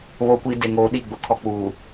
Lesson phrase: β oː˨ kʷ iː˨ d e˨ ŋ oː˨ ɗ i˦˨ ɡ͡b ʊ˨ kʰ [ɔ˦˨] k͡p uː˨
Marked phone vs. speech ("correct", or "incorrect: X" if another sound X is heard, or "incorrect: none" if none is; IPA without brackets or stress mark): incorrect: ɔ˨